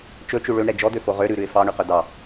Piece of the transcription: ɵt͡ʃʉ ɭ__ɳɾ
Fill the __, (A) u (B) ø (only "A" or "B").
B